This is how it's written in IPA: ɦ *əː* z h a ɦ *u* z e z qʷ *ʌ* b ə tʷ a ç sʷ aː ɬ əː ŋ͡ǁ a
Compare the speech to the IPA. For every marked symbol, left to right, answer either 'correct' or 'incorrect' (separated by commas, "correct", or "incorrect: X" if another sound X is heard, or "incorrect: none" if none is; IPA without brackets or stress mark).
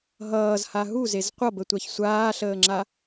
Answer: incorrect: ʌː, correct, correct